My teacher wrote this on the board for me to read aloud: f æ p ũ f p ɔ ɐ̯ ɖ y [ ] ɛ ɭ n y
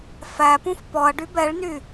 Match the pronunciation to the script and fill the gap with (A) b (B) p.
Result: A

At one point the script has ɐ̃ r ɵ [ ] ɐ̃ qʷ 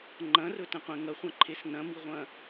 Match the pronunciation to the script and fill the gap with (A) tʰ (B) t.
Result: B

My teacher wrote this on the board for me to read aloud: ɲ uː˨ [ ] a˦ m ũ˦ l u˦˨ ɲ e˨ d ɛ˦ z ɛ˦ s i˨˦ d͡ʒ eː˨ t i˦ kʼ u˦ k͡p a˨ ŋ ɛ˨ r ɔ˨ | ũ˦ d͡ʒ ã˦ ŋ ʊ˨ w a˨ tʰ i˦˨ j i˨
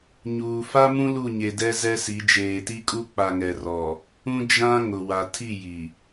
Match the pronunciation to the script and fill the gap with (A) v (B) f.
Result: B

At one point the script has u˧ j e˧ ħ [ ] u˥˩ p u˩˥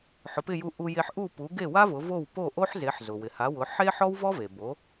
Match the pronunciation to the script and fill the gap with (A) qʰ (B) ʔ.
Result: B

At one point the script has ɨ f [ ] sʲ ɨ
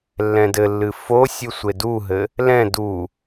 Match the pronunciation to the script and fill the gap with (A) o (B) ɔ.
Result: A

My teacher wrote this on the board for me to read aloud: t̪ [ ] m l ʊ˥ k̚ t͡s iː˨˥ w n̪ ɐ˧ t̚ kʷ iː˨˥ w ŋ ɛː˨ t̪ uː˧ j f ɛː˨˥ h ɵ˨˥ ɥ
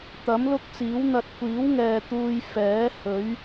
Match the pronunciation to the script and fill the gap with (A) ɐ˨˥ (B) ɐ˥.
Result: A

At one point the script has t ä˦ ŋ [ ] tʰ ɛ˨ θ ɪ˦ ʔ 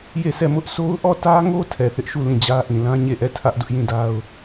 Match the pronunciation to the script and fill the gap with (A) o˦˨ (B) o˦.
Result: B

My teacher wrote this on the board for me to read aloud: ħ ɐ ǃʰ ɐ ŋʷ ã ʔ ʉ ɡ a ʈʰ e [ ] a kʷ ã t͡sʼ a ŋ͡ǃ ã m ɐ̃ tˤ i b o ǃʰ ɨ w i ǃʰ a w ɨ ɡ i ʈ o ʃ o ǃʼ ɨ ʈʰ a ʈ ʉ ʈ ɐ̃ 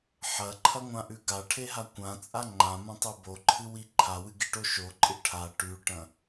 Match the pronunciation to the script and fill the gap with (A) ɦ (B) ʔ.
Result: A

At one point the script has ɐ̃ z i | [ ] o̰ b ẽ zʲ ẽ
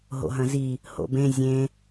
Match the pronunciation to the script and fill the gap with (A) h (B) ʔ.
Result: A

